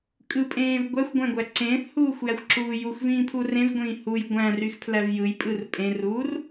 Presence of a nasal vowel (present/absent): present